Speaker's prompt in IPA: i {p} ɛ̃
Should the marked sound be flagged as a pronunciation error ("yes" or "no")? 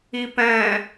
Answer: no